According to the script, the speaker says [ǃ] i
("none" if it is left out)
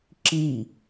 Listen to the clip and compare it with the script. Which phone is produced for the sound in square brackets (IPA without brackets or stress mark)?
ǁ